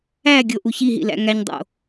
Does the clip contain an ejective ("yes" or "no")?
no